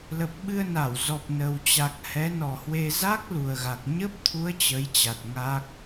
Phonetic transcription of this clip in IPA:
lə˨˩p̚ɓɨ˧ə̯na˧˩w zɔ˨˩p̚nə˨˩wt͡ɕa˨˩k̚ hɛ˨˦nɔ˨˩hwe˧ za˦˥k̚ lu˨˩ə̯ɣa˨˩k̚ ɲə˦˥p̚t̪ʰu˨˦ə̯ t͡ɕə˨˦jt͡ɕa˨˩t̚ ŋa˦˥k̚

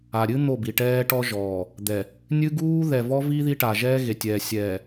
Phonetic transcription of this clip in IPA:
a˨ɾʲɨ˦ n̪o˦˨bi˨ʈɛː˦ ʈɔ˦ʒɔː˨ | d̪ɛ˨ | nʲɨ˦ɡuː˦ ðɛ˨vɔ˦vi˦ ði˦ʈa˨ ʒɛː˦ɣe˨tʲɛː˨ sʲɛː˨

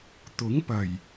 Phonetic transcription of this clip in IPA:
t̪ʊ˨˥ŋpɐ˨˩j

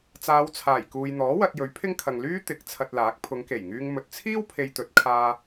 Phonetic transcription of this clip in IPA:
t͡saː˨˧wt͡sʰaː˨˩jkuː˨jn̪ɔː˨˥ wɐ˧t̚jɵ˨˥ɥpʰɪ˥ŋkʰɐ˨ŋ lyː˥t̪ɪ˨˥k̚ t͡sʰɐ˧t̚laː˨˥k̚ pʰʊ˨˧ŋke˨˩jŋyː˧ŋ mɵ˨t̚t͡sʰiː˥w pʰe˧jt̪ɵ˨˥t̚kʰaː˧

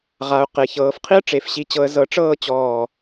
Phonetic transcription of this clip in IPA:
ʁa˩˧ʊ̯ qe˩˧çɤː˩˧fqʰi˥ə̯ ʈ͡ʂe˧˩fɕi˧t͡ɕɤ˧ə̯ zɤ˧ʈ͡ʂɤː˥˧t͡ɕɔː˧˩

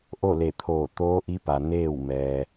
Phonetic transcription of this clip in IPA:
ʔo˥˨le˧˩t̪ʰoː˧˩ t̪oː˧˥ʔi˧˥pa˩ neː˥˨w mɛː˩

